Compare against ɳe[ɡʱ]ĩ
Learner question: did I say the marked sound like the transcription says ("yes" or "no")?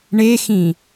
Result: no